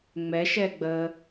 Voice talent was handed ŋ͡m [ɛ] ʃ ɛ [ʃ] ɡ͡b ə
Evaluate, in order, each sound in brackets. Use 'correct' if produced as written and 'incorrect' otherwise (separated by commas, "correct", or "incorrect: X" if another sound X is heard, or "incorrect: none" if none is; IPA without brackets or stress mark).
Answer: correct, incorrect: none